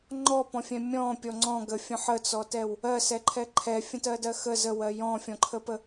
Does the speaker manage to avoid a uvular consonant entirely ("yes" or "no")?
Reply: yes